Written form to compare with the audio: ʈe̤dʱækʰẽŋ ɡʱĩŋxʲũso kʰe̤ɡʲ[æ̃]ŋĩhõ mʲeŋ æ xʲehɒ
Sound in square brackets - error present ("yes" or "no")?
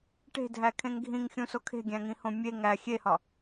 no